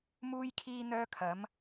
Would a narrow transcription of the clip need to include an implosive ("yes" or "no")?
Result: no